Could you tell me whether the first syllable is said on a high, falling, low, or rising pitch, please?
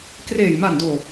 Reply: low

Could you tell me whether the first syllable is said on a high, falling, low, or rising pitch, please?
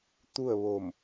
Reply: falling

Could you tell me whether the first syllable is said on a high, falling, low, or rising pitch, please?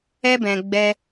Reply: high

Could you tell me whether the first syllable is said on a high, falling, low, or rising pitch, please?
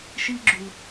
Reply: high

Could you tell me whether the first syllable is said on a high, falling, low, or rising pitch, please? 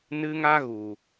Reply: high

